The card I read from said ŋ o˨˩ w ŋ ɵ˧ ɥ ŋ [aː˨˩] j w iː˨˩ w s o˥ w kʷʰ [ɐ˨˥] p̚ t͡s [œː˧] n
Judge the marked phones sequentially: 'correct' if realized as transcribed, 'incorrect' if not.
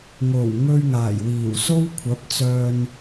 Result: correct, correct, correct

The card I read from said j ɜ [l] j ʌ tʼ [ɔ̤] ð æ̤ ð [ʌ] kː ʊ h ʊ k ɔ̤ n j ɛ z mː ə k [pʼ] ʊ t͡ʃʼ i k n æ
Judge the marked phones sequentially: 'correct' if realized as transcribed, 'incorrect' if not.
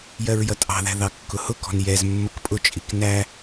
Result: incorrect: ɹ, incorrect: ɑ̤, incorrect: ɑ, correct

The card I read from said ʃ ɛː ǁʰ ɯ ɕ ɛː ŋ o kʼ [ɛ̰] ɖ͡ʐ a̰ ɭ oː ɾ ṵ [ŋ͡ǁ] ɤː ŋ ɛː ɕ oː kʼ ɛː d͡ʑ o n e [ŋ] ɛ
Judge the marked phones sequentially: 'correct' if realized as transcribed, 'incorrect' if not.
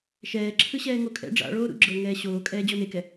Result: correct, incorrect: ɡ͡ǁ, incorrect: k

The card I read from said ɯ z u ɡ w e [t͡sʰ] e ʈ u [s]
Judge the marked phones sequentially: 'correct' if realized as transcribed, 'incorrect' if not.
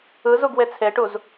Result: correct, incorrect: z

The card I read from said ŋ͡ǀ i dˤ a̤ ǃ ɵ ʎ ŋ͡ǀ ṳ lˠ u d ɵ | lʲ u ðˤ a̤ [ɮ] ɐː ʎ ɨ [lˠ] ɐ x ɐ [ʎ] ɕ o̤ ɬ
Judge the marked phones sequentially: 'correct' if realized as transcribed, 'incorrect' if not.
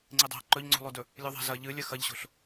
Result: incorrect: z, incorrect: lʲ, correct

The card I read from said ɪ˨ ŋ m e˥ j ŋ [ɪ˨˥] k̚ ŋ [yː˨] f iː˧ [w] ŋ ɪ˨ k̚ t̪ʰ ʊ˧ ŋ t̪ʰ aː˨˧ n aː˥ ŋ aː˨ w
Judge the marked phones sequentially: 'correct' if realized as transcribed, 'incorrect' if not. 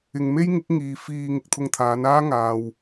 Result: correct, incorrect: iː˨, incorrect: none

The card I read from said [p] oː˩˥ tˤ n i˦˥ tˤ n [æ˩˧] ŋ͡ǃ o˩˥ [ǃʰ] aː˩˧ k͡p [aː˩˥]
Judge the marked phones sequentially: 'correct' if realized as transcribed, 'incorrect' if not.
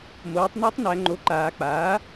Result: incorrect: m, correct, incorrect: ǃ, correct

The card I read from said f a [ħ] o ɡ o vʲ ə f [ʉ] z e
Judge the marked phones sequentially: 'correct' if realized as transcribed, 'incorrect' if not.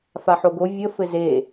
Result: correct, incorrect: ɘ

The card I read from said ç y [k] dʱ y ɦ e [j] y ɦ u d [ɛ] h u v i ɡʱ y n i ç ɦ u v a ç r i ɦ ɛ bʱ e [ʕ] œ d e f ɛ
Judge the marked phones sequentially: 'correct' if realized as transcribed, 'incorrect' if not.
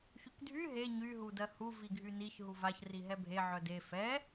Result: correct, incorrect: ɲ, incorrect: ɜ, correct

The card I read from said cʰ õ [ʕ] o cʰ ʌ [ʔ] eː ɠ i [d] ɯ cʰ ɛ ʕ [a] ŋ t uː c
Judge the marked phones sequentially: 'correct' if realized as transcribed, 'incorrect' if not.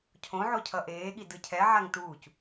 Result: correct, correct, correct, correct

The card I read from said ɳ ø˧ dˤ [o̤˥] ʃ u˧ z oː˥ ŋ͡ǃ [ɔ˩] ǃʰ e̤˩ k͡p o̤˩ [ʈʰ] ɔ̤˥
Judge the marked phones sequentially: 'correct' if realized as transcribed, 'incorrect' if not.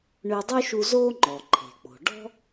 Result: incorrect: o˥, correct, incorrect: ɖ

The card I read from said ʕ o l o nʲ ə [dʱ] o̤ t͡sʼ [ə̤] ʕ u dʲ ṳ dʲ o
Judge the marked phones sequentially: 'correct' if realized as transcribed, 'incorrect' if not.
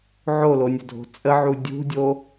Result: correct, incorrect: ə

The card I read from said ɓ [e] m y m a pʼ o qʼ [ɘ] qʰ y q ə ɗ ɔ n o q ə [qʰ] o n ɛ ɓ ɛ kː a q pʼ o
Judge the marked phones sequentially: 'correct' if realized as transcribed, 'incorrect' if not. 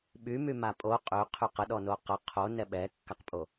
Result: incorrect: y, incorrect: ø, correct

